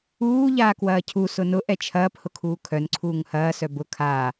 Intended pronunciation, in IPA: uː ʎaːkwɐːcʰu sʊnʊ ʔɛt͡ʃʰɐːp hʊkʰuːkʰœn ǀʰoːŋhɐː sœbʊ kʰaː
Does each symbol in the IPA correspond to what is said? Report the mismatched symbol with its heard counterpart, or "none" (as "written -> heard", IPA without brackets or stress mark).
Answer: oː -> uː